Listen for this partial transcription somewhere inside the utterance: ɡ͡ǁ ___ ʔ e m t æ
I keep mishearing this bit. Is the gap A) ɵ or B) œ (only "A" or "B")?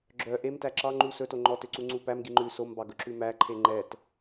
B